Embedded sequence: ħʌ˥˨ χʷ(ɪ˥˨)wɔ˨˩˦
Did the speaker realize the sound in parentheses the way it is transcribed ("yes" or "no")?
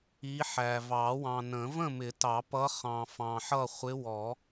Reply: no